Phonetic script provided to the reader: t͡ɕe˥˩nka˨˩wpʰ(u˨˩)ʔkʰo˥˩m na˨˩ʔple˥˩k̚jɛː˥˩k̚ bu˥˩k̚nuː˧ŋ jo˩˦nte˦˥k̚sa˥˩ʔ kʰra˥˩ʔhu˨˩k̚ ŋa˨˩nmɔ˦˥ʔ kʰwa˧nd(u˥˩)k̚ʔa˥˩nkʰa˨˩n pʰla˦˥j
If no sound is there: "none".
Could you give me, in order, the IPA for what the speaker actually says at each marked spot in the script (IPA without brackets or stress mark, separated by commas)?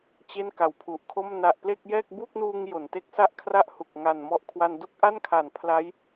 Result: u˨˩, u˥˩